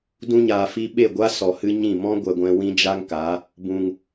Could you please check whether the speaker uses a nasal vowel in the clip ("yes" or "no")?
yes